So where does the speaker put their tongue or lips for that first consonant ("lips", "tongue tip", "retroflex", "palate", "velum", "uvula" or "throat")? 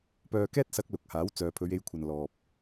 lips